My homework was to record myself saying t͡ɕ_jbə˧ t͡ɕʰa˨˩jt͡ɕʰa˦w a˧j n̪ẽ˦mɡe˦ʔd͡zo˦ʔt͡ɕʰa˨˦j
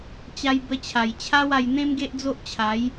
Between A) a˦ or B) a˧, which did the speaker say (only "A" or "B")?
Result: B